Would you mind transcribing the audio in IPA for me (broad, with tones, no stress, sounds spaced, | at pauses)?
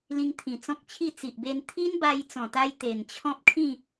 l ĩ˧ ŋ t̪ʰ ĩ˨˩ t͡s ɔ̃˦ k̚ t͡ɕʰ i˥˧ t͡s i˨ ʔ b e˧ n t̪ʰ i˦ n b a˧ j t͡s ɔ̃˨˩ t̪ a˧ j t̪ e˨˩ n t͡ɕʰ ɔ̃˦ p̚ kʰ ĩ˥˧